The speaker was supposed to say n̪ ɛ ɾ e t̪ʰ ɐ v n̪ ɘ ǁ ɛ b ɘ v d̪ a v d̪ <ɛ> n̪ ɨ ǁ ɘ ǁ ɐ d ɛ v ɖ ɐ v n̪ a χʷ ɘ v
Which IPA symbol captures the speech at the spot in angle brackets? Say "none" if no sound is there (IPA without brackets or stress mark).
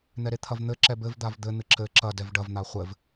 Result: ɘ